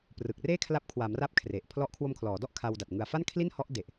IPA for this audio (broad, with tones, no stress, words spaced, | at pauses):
prɯ˨˩k̚ reː˥˩kʰla˦˥p̚kʰwa˩˦mra˦˥p̚ kʰre˨˩ʔ pʰlɔ˦˥ʔkʰwo˧mkʰlɔː˩˦dɔ˥˩ʔ kʰa˧wda˨˩t̚ ŋɯ˨˩a̯fa˥˩n kʰli˥˩nhɔ˦˥ʔde˨˩ʔ